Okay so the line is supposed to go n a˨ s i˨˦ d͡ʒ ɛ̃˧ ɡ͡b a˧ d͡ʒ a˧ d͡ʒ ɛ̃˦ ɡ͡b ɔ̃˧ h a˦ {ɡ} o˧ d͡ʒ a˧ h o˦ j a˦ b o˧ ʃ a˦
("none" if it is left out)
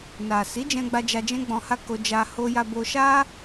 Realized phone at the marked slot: k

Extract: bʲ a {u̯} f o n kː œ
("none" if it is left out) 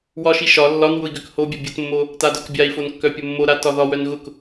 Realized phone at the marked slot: i̯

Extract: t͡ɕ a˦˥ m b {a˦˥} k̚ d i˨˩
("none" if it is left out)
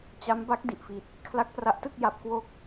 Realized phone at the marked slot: a˦˥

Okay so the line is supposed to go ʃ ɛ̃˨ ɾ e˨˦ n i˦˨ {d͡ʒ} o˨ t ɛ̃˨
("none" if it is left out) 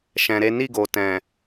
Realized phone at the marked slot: ɡ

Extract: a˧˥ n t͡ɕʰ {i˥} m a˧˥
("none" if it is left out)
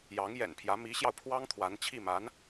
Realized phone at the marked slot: i˥˩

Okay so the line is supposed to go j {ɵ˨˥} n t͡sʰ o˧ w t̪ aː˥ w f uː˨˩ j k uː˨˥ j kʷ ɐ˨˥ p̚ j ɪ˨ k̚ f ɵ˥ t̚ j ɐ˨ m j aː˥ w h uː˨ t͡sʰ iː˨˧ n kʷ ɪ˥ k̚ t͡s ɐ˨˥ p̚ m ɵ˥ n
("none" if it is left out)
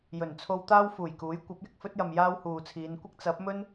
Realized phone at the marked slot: ɵ˨˩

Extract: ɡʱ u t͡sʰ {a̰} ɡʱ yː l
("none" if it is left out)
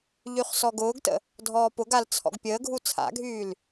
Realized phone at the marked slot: a̰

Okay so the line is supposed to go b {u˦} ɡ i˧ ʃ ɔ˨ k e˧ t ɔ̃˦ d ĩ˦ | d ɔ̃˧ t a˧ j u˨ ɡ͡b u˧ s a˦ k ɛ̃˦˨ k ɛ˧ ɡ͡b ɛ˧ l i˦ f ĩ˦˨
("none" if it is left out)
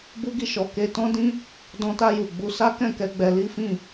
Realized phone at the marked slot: u˦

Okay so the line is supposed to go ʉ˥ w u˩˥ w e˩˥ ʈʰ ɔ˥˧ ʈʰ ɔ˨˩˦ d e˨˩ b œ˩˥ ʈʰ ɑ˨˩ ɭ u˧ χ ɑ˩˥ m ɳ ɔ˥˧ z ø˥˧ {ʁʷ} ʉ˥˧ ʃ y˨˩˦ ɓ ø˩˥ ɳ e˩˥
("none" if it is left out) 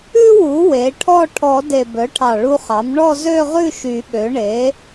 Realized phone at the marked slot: ʁ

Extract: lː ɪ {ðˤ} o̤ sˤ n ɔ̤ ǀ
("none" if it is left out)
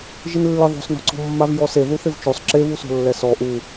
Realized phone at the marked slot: ðˤ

